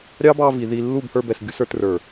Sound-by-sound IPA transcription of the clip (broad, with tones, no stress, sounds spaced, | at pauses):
ɾʲ ɑ˦ b ɑ˧ v i˨ ð i˧ lː u˦˨ b h ə˞˧ b ɛ˨ s ɡʲ u˧ s ə˞˧ t r ə˞˨